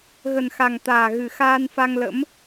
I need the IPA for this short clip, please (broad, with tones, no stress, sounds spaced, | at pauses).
ɣ ə˨˩ n x a˨˩ ŋ t̪ aː˨˩ ɣ ɨ˨˩ x aː˧ n f a˧ ŋ l ə̰˧˥ m